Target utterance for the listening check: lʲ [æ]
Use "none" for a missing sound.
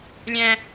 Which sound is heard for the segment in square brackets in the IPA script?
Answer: æ̃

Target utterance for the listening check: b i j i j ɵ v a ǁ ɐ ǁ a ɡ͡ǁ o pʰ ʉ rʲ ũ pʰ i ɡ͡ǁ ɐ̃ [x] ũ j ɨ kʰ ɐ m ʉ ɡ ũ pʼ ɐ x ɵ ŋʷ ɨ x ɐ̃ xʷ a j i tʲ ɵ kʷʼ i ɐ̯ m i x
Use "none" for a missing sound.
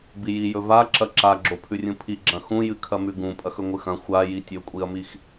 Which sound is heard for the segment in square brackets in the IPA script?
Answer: x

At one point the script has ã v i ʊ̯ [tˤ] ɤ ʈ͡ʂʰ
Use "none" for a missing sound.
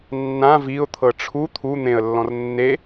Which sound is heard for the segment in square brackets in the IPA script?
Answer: t̪ʰ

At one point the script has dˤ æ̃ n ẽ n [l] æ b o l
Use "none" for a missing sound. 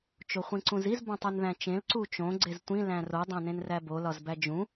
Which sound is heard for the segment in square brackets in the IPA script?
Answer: r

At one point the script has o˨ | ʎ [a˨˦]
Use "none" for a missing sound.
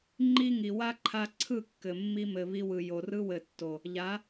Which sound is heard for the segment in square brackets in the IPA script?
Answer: a˨˦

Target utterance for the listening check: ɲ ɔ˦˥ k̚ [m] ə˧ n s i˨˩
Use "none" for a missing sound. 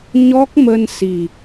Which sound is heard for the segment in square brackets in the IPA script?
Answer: m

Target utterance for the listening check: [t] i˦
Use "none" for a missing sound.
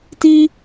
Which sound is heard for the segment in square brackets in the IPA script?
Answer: t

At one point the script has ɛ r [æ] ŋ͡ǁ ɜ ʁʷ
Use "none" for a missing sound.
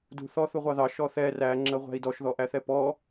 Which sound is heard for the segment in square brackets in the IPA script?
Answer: æ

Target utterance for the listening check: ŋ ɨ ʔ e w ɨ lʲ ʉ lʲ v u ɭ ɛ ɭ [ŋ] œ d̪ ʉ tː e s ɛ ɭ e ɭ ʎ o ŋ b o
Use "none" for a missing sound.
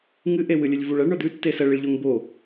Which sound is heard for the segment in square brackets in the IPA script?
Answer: ɳ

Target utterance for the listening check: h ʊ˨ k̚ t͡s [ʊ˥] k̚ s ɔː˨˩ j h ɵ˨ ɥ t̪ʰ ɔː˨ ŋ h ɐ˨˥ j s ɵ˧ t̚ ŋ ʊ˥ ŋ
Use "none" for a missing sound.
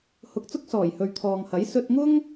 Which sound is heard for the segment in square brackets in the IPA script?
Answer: ʊ˥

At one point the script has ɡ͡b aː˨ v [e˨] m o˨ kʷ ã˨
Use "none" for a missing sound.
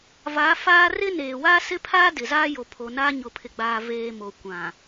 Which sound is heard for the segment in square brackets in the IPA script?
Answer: eː˨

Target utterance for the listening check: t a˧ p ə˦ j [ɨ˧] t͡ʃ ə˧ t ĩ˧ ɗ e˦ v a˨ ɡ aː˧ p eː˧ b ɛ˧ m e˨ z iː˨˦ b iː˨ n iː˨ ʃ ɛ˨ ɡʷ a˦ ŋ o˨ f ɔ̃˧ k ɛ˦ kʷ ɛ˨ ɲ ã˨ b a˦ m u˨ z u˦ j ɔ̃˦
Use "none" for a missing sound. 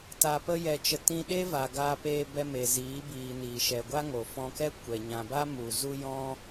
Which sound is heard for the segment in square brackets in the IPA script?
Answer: ɛ˧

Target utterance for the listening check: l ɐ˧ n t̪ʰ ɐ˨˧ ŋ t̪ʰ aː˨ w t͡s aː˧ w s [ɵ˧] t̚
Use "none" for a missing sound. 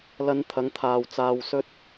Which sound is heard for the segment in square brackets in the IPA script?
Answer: ɵ˧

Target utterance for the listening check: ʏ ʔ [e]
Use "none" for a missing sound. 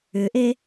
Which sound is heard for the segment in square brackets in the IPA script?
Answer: e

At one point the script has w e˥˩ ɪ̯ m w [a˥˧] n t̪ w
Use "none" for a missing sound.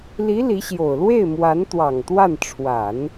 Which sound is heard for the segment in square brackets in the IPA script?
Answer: a˧˥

